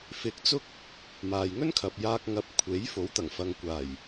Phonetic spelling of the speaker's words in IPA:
f ɪ˧ k̚ t͡s ʊ˥ k̚ | m aː˨ j ŋ ɵ˥ n kʰ ɐ˨ p̚ j aː˧ k̚ ŋ ɐ˨˥ p̚ kʷʰ e˨˥ j f o˨˥ w t̪ ɐ˨˩ ŋ f ɐ˨ ŋ kʷ aː˨˩ j

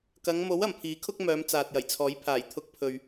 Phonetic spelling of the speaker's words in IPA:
k ɐ˨˧ ŋ m o˨˥ w ɐ˨˩ m pʰ iː˨˥ kʰ ʊ˥ k̚ m œː˨˧ m t͡s aː˨ t̚ j ɐ˨˩ j t͡sʰ ɔː˨˥ j pʰ aː˨˩ j t̪ʰ ʊ˧ k̚ pʰ ɵ˨ ɥ

